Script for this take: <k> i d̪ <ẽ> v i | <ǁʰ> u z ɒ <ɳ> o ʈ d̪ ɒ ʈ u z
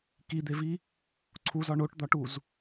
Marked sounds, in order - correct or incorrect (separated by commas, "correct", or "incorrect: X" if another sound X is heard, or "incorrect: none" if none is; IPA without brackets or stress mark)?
correct, incorrect: e, incorrect: ǀʰ, correct